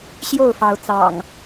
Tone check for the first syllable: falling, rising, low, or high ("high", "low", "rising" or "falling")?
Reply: falling